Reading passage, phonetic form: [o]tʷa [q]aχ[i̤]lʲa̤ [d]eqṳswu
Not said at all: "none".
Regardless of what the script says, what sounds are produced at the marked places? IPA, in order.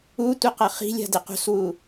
u, q, i̤, d

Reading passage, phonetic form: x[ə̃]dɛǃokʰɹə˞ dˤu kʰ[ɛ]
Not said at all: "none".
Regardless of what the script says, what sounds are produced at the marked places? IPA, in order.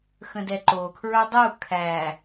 ə̃, æ

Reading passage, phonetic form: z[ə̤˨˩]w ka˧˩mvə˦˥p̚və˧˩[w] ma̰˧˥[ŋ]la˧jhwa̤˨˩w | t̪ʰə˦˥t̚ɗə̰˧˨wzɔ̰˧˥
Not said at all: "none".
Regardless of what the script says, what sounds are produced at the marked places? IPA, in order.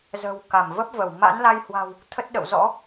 ə̤˨˩, w, n

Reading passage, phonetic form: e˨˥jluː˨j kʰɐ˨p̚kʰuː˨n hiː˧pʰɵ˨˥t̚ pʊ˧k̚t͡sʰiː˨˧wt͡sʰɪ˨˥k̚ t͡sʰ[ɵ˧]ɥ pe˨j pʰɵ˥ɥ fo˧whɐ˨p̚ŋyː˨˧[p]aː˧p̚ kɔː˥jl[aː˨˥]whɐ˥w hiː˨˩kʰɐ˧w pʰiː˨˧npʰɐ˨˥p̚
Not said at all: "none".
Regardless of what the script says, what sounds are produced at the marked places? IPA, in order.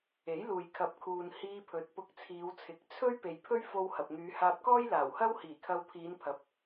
ɵ˥, h, aː˨˩

